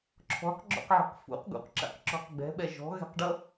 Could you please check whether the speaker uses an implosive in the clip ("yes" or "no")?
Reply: yes